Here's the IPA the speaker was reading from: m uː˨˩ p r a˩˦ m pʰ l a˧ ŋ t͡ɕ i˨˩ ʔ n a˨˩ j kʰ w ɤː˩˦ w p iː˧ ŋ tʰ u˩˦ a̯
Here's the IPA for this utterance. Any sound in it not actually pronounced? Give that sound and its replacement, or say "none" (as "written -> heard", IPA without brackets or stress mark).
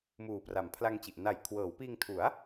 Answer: none